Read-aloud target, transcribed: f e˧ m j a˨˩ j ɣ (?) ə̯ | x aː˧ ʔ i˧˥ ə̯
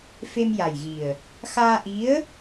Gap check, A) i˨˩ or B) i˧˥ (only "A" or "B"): A